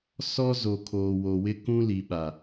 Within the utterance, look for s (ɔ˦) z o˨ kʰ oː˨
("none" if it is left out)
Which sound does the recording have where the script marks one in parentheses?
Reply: ɔ˦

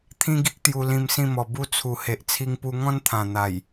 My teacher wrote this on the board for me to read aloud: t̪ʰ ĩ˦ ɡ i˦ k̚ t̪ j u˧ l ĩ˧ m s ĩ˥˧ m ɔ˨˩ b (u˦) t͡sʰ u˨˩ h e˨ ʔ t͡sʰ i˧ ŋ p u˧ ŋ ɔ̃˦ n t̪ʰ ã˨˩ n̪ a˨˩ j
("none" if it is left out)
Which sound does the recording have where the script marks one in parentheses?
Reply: u˦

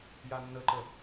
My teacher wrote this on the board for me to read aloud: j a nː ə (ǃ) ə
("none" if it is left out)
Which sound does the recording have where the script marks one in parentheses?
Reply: ǃ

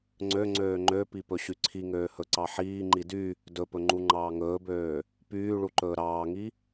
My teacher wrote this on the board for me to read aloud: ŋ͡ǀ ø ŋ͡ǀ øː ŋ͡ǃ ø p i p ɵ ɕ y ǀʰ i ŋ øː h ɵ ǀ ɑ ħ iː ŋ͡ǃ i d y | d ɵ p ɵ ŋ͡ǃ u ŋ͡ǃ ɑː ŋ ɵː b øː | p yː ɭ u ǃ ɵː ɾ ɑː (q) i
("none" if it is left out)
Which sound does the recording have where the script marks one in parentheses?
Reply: ŋ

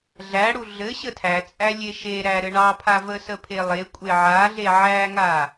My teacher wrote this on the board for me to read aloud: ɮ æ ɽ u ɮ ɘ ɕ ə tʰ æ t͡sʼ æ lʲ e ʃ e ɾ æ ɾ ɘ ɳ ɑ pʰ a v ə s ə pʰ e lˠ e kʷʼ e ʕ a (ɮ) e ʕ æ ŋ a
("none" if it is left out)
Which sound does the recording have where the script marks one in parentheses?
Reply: ɮ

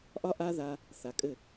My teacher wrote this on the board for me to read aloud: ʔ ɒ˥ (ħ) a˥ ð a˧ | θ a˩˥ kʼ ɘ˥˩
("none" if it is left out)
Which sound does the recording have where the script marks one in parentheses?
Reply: ʔ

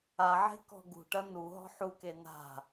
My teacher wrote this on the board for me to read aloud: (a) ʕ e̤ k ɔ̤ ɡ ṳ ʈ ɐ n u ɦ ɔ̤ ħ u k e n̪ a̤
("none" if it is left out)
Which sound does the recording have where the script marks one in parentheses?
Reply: a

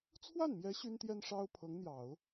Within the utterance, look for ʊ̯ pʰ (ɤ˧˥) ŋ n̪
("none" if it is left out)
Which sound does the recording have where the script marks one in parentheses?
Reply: ɤ˧˥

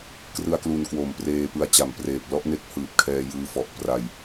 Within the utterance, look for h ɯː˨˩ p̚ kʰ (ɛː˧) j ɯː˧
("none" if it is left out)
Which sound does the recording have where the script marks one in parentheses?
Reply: ɛː˧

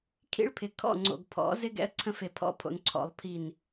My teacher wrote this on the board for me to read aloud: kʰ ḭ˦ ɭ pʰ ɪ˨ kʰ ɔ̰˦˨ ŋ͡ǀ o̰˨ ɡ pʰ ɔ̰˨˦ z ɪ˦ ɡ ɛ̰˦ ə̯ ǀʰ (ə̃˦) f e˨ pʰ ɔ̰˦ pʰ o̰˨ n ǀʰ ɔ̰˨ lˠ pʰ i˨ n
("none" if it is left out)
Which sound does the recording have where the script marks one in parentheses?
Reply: ə̃˦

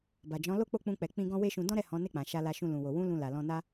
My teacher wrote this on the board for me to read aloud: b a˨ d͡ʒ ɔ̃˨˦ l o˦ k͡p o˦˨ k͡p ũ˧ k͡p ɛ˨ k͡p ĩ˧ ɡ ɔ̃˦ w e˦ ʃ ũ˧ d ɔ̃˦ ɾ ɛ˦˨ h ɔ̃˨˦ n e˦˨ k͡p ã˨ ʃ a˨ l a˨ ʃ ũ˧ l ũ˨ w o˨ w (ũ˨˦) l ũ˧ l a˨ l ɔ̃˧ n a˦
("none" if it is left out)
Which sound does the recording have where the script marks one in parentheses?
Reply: ũ˨˦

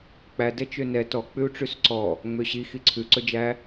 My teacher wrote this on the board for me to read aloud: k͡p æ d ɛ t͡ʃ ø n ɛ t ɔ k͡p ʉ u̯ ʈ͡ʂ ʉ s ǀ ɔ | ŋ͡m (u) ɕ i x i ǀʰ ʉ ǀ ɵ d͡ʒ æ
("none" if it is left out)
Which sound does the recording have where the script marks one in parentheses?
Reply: ø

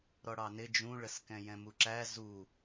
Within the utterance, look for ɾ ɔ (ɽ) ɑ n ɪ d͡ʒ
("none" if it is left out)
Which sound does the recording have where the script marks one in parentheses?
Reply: ɽ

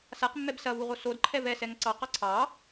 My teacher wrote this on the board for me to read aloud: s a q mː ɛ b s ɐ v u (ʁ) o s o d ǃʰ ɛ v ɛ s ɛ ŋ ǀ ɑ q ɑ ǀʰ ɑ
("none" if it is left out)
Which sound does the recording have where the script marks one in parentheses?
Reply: ʁ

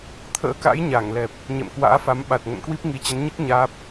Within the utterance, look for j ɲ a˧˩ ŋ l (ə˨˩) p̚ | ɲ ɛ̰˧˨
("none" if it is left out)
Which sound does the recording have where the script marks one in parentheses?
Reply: ɛ˨˩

